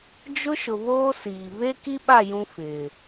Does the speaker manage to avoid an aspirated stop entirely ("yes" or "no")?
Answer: yes